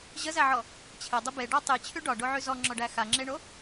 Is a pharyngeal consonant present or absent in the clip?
present